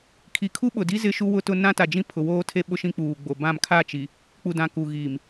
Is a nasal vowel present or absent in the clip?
present